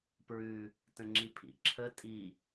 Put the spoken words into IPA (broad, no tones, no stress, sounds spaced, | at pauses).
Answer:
p ɹ ʉ | t ə̃ ŋ͡ǁ i pʰ ḭ ǁʰ ə tʼ i